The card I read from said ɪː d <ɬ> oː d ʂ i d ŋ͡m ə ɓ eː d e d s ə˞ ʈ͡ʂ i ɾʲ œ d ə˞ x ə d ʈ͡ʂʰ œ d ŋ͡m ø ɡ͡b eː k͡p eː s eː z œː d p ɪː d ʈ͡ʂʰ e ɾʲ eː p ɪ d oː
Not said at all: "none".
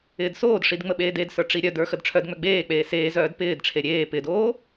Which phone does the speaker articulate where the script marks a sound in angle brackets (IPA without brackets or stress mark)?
s